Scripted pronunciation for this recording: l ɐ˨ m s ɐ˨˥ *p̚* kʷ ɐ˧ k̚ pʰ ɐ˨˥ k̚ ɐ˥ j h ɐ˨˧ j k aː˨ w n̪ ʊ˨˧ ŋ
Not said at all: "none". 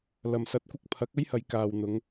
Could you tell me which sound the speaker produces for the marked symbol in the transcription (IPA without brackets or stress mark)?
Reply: t̚